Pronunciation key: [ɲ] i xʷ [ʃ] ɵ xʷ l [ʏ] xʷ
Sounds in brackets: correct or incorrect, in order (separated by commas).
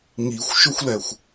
incorrect, correct, incorrect